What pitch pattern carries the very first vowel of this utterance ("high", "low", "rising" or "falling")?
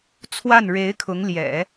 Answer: falling